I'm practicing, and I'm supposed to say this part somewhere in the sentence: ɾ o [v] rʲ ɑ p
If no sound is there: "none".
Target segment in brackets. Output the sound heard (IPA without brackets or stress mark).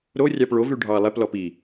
none